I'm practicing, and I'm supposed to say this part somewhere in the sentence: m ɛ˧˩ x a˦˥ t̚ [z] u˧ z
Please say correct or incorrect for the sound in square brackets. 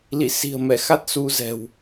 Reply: incorrect